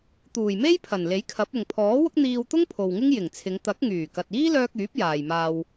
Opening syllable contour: low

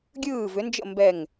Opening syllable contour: falling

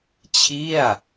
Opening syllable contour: falling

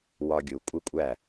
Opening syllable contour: low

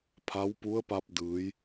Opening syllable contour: rising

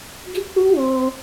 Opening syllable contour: high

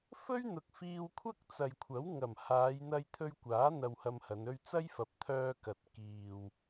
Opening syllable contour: high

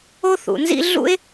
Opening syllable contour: high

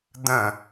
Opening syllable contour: falling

